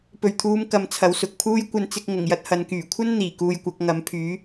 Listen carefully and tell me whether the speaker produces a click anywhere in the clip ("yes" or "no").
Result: no